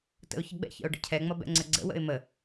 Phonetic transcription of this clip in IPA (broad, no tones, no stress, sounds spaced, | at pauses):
t ə̰ ʊ̯ ç ə ɡ͡b ɛ̰ ç ə̰ ʊ̯ ɖ ə̰ cʰ ɛ ŋ͡m ʌ b ɛ̰ ŋ͡ǀ ə ɡ͡ǀ ə̰ w ə̰ ɪ̯ m ə